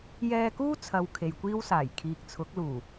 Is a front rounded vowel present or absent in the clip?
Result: absent